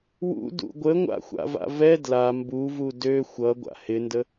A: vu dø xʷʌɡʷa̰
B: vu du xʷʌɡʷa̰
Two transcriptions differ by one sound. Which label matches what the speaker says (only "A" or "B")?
A